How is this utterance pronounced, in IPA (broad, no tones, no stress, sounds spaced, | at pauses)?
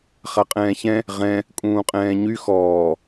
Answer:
χ a qʼ ɛ̃ː ç ɛ̃ | ʁ ɛ̃ | kʼ ũː qʼ ɛ̃ː ɲ y x ɔː